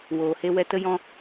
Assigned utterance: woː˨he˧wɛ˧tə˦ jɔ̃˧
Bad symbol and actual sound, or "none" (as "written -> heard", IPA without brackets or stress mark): none